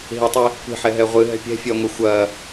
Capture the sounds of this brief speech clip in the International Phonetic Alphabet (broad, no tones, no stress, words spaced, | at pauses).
ɦitˤe | kʷɛ̤ħɛɦɛ ʁʷɨɦɛ̤ pʲɛ̤fʲɐːŋʷe xʷɐː